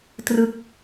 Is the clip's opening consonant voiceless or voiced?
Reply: voiceless